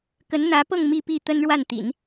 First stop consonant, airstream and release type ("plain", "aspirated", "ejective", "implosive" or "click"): plain